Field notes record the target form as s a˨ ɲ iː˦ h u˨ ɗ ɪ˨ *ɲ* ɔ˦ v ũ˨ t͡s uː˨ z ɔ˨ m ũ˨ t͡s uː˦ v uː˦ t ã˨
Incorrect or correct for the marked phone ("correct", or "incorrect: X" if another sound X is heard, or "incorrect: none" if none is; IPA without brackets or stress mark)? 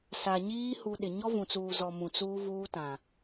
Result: correct